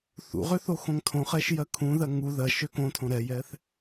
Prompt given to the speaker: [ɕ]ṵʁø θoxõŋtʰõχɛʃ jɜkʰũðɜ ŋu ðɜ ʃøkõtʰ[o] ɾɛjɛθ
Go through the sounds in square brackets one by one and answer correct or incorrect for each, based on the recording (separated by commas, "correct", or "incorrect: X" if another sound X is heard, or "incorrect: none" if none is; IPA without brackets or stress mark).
incorrect: θ, incorrect: õ